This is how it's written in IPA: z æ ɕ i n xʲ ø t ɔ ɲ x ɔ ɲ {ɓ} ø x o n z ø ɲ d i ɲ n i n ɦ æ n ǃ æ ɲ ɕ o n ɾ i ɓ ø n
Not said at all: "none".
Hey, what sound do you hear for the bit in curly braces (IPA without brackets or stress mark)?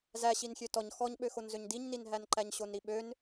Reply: ɓ